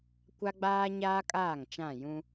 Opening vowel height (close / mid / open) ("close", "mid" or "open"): open